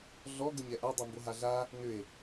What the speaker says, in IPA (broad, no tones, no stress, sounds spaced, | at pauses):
ɮ ɔ ɡ ə ɲ ɛ ʔ a dˤ ʏ m b o ɦ a ɮ a | n ʏ e̯